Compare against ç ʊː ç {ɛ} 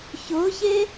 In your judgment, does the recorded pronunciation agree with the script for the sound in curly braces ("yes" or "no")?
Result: no